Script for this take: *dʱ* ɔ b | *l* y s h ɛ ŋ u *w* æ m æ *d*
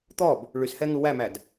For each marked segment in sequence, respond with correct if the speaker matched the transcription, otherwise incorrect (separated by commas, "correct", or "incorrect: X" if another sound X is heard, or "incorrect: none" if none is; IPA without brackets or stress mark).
incorrect: t̪, incorrect: ɭ, correct, correct